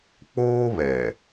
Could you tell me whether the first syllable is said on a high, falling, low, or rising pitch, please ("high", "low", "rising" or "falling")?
high